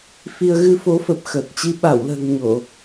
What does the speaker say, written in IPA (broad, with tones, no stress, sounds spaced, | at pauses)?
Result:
f i˧ ə̯ ɣ ɨ˧ f o˨˦ f ə˨˩ p̚ x əː˨˩ t̚ t͡ɕ i˧ ɓ a˧˩ w l ə̤ː˨˩ ŋ ɲ o˧˩˨